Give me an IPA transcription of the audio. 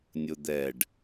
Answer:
nʲ ʊ d̪ ɛ ɖ

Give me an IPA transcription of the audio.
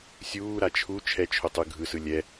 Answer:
sʲ uː ɾ a t͡ʃʰ u t͡ʃʰ ɛ t͡ʃʰ o tˤ ɯ ɡʱ ɯ s ɯ lʲ ɛ

